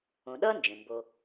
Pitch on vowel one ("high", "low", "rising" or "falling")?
low